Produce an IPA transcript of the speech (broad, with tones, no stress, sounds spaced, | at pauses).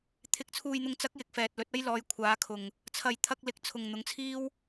t̪ʰ ɪ˨ k̚ t͡sʰ uː˨ j n̪ ʊ˨ ŋ t͡s ɐ˨˥ k̚ j ɪ˨ k̚ f ɛː˨ t̚ l ɵ˨˥ t̚ ɐ˥ j l ɔː˨˧ j kʷʰ aː˨˧ kʰ ʊ˨ ŋ | t͡sʰ ɐ˨ j t̪ʰ ɐ˧ k̚ l ɪ˨ k̚ t͡sʰ ʊ˨ ŋ n̪ ʊ˨˥ ŋ t͡sʰ iː˥ w